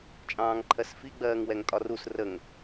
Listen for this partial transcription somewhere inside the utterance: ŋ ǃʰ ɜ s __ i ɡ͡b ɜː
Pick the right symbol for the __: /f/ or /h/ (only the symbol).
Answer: f